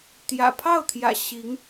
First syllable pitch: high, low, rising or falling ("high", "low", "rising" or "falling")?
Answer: low